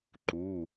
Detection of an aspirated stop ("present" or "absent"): absent